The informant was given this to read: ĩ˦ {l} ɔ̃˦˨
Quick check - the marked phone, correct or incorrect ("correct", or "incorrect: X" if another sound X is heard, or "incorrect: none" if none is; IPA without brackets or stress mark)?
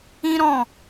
incorrect: ɾ